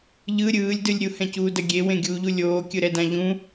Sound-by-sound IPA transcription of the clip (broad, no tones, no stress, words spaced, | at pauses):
ʎɯ ɾʲɯːlʲdɯlʲ ɾʲuhɛ̃cuːdʌ ɡʲewẽɡʲuːʎu lʲoːkʲɯɾɛdã ʎũ